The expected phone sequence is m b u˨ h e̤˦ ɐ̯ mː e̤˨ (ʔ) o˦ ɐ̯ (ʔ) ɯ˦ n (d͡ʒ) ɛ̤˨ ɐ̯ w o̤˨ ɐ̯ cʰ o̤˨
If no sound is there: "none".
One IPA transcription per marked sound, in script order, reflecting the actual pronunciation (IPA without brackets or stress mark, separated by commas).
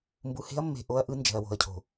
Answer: ʔ, ʔ, d͡ʒ